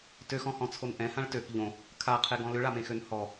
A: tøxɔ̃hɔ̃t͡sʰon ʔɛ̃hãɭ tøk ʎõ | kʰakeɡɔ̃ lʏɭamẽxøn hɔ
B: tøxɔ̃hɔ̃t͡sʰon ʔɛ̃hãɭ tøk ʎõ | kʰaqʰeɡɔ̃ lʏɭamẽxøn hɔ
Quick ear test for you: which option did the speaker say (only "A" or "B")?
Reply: B